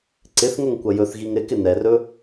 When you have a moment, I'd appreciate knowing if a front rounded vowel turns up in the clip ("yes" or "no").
no